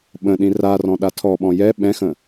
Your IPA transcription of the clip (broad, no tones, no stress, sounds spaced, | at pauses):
ɓ ə̃ ɗ ĩ r a r ɔ̃ ɗ a tʰ ɔ ɓ ɔ̃ j ɛ ɓ ɛ̃ x ə̃